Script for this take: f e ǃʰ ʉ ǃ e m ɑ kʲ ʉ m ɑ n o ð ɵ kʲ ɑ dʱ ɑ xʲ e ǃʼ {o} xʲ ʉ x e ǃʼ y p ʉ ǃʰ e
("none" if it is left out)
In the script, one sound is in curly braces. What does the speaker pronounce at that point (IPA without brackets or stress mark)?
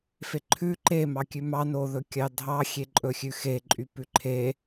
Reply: ɵ